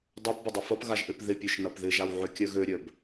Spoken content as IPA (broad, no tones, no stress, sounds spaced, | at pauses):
dˤ a p b ɪ dˤ ɪ f ɐ p ɣ a ʒ ʔ ø p ð ɪ pʲ œ ʃ n ɐ p ð ɪ ʒ a w ʕ ø kʲ œ ɣ ø ɾʲ œ b